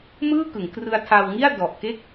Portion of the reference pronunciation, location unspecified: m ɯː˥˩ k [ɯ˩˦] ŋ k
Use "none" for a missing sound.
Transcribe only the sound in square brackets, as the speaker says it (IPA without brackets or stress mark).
ɯ˩˦